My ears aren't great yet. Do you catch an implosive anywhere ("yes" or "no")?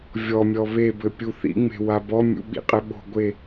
yes